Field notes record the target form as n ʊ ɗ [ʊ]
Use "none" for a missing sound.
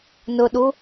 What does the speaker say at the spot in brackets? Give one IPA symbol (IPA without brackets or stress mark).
u